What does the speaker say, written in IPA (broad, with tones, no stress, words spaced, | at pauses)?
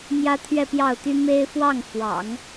mjä˥t̪ʰɥɛ˥˧pjɑ˥˩ʊ̯t̪y˥ me˥ɪ̯ fwɑ˥˩ŋ fwɑ̰˨˩˦ŋ